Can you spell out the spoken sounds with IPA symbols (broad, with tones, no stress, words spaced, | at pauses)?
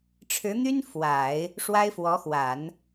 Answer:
ʈ͡ʂʰɻ̩˧˥n̪y˥n fwa˨˩˦ɪ̯ | ʂwa˥ɪ̯fwɔ˧˥xwa˨˩˦n